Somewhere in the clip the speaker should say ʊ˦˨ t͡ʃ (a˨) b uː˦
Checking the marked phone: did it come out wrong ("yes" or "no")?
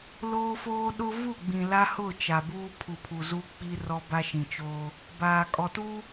no